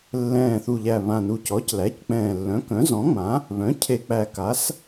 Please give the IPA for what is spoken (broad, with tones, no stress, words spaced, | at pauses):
lːɛ̃ː˨˩θu˨˩ʎæ˨˩ βã˨˩nu˨˩c ɔ˩˥clæ˩˥ck͡pɛ̃ː˨˩ lːœ̃˩˥kœ̃˩˥zɔ̃˩˥ŋ͡mã˩˥ | βœ̃˩˥cʰe˨˩k͡pæ˨˩ ka˩˥s